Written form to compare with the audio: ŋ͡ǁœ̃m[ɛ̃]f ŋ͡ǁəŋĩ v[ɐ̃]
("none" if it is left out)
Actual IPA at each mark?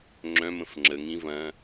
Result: ə̃, ɐ̃

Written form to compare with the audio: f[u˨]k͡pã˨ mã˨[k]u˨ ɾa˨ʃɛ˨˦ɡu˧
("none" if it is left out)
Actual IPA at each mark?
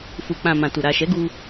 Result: u˨, t

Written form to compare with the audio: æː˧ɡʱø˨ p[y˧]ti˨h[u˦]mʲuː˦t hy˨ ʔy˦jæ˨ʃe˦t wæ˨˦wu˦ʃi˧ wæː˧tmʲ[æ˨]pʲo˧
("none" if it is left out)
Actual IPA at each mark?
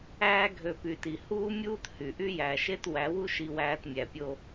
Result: y˨, uː˦, æ˨

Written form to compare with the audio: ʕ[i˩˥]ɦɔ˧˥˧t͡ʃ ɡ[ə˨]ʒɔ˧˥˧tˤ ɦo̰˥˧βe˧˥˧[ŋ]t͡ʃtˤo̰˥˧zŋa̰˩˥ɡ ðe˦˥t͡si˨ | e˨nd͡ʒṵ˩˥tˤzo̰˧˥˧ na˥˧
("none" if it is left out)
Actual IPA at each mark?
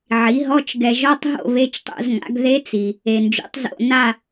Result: i˩˥, ɛ˨, none

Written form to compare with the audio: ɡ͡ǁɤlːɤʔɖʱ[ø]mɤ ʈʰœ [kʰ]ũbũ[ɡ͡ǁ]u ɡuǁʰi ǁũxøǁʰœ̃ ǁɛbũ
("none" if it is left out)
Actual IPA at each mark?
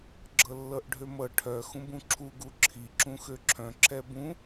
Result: ø, x, ǁʰ

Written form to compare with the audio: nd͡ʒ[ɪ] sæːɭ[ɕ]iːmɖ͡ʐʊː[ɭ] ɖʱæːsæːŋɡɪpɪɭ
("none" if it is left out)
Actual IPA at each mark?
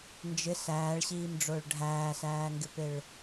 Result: ɪ, ɕ, ɭ

